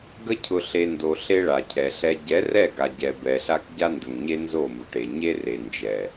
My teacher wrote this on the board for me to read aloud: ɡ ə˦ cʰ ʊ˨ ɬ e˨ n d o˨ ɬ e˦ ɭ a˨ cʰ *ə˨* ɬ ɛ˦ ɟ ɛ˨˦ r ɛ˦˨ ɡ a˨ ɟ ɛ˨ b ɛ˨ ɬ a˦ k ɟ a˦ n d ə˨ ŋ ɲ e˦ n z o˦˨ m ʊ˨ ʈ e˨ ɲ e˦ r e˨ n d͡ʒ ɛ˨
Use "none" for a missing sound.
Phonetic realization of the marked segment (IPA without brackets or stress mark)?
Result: ɛ˨